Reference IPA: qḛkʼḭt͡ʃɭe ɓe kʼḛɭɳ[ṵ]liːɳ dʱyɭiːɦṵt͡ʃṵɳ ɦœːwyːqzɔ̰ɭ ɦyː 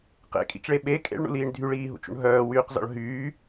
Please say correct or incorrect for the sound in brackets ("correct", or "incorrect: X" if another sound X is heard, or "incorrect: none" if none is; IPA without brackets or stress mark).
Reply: correct